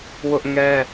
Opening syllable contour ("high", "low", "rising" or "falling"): high